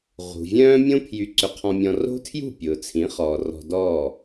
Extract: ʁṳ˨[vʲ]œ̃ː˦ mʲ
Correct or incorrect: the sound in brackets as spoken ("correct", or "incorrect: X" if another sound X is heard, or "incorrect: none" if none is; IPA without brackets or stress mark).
correct